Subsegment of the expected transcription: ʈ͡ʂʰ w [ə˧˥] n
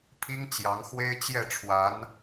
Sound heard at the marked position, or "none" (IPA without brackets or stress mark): a˧˥